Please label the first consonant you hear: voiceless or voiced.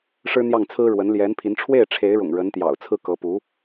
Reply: voiceless